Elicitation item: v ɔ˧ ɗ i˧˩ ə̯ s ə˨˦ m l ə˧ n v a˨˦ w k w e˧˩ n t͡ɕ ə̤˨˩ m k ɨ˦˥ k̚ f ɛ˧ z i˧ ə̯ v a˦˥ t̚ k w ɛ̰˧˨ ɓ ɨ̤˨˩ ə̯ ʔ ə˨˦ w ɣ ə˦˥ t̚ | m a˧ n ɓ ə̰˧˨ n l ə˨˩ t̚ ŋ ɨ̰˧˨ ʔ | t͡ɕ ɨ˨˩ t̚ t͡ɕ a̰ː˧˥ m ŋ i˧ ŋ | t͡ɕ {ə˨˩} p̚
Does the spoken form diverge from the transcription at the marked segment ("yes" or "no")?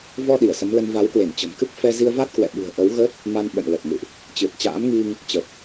no